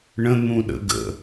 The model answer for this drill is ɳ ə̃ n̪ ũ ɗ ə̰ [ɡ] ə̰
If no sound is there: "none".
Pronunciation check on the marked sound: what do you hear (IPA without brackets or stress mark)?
ɡ